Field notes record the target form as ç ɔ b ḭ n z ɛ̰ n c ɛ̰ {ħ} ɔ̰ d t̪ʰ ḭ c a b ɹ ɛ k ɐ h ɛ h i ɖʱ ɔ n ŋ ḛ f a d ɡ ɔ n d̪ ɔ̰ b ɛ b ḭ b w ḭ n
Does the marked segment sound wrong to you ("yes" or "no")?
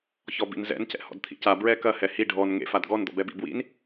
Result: yes